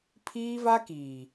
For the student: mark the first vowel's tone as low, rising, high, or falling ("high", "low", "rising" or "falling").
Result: high